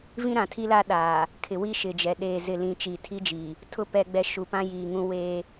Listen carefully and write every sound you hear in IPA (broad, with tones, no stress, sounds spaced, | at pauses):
v ĩ˦ ɾ ã˨ tʰ i˦ l a˦ ɗ aː˨ | kʰ ɪ˨ w i˦ ʃ ɪ˨ d͡ʒ ɛ˨ ɗ eː˨ z ɪ˨ l ĩ˨ t͡ʃ i˨ tʰ i˦ d͡ʒ iː˨ | tʰ ʊ˦˨ p ɛ˨ ɡ͡b ɛ˨ ʃ u˨ p ã˦ j iː˨ ŋ ũ˦ w eː˦